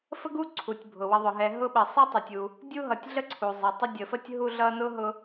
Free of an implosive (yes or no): no